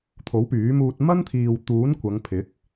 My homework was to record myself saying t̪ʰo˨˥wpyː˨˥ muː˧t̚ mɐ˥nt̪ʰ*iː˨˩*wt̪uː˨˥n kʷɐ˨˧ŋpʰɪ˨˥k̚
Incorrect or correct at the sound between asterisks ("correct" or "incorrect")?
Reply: incorrect